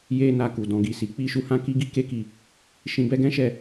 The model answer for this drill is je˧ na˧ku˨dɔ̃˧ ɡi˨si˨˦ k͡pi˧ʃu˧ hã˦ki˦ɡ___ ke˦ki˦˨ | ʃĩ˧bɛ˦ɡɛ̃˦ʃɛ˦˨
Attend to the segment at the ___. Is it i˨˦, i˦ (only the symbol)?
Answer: i˦